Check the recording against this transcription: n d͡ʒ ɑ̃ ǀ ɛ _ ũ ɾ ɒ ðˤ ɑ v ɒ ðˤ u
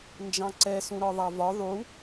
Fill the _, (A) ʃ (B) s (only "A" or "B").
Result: B